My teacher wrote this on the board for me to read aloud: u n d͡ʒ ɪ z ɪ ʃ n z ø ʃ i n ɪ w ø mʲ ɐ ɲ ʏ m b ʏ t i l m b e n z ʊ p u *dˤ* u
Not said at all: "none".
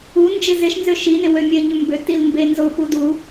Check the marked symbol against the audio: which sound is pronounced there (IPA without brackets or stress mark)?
d